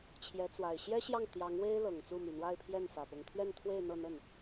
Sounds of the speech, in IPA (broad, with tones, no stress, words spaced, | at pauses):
t͡ɕʰjɛ˧˥t͡swa˨˩ɪ̯ ɕjɛ˥ɕjɑ˥˩ŋ t̪jɑ˧˥ŋwe˥ɪ̯ lɤ˨˩ŋt͡su˥˩my˨˩ n̪wa˥˧ɪ̯pʰjɛ˥˩n sä˨˩pʊ˧˥ŋ t̪ʰɥɛ˥˧nt̪ʰwe˥˧ɪ̯ n̪ɤ˥˧n̪ə˥˩n